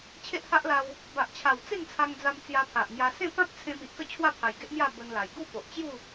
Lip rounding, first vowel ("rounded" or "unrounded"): unrounded